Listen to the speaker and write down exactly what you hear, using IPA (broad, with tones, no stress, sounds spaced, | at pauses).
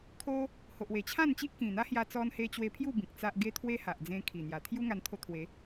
kʰ o˧ | h o˨ ʔ w e˨˩ t͡ɕʰ ã˥˧ n t͡ɕ i˦ ʔ k ĩ˨˩ n̪ a˦ h j a˧ t͡s ɔ˧ n h e˧ t͡ɕ w e˧ pʰ j u˥˧ b ĩ˨ k̚ t͡s a˦ ʔ ɡ e˦ t̪ʰ w e˦ h a˨ ʔ d͡z ẽ˧ kʰ i˨˩ n̪ j a˨˩ t̪ʰ j u˦ ŋ a˧ n t̪ʰ o˧ t̪ʰ w e˨˦